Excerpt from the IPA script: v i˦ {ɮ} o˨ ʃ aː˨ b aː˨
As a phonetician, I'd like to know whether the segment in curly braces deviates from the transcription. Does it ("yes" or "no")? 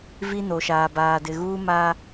yes